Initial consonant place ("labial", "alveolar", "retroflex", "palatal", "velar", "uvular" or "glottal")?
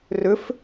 alveolar